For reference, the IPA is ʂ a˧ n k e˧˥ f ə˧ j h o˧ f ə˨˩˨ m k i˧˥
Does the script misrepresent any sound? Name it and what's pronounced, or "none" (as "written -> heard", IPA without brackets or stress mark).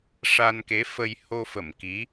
none